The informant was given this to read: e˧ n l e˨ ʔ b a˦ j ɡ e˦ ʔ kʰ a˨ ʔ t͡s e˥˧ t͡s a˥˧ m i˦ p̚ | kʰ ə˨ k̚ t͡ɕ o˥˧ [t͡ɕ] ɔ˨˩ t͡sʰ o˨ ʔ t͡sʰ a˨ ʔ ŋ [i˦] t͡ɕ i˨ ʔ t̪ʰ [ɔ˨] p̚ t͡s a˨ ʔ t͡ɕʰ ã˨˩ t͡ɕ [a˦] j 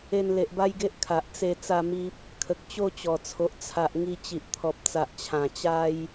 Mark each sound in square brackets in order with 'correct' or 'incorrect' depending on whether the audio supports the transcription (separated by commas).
correct, incorrect, correct, correct